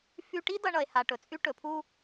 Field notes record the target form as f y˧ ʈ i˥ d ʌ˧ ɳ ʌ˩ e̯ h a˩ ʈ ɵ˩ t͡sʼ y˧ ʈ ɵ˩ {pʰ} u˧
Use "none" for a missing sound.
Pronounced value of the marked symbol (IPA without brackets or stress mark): pʰ